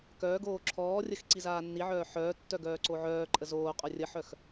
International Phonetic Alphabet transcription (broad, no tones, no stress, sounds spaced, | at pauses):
k œː ɡ oː ǁʰ ɔː rʲ ə x ǀ i z aː nː i ʕ œː ħ œː tː œ ɡ œː ǀ o ʕ œː ǃʼ ə z oː qʼ œ rʲ ə ħ œ x